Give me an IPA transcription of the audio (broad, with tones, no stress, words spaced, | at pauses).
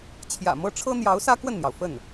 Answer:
t͡ɕʰjä̰˨˩mɤ˥ ʈ͡ʂʰɤ˥n̪jɑ˧˥ʊ̯sä˥ kwə˥˩nn̪jɑ˩ʊ̯ fə˥˩n